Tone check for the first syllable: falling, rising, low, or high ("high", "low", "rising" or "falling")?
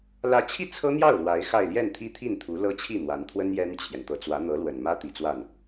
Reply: rising